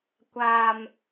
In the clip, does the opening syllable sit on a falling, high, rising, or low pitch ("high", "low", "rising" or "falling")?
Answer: low